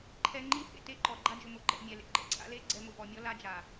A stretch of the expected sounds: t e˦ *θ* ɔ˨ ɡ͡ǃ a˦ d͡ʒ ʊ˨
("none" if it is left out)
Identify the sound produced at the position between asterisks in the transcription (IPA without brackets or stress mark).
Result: ǃ